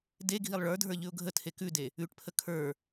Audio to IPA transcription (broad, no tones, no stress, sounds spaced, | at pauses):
d e ɡʱ i lˠ ɭ ə˞ dʱ ə˞ ʎ ʉ ʊ̯ ɡʱ ə tʰ e k ʉ d e | ʉ ʈ pʰ ə kʰ ə˞